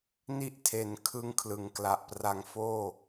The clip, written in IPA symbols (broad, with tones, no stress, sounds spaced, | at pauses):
n i˦˥ ʔ tʰ e˩˦ n kʰ ɯ˦˥ ŋ kʰ l ɯ˩˦ ŋ k l a˨˩ ʔ p r a˧ ŋ f oː˥˩